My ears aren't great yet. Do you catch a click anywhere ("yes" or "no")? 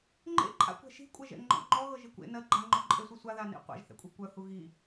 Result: yes